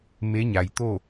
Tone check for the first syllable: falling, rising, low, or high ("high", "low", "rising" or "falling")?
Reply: rising